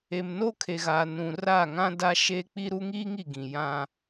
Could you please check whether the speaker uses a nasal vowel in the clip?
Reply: yes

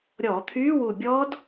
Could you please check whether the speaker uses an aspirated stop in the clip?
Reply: yes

